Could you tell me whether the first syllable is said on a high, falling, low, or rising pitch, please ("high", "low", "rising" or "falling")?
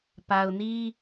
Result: low